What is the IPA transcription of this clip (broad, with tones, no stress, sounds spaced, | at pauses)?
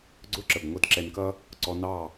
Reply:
ɡ͡ǀ ʊ˦˨ ǁ ə˨ b ŋʷ ʌ˦ d ǁ ɛ˧ n k ʌ˦ | ǀ ɔ˧ n ɑ˦˨